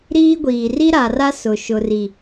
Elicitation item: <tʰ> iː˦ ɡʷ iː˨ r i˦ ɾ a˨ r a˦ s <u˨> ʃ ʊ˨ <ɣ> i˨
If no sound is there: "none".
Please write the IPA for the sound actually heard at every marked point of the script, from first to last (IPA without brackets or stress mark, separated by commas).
ɾ, ʊ˨, r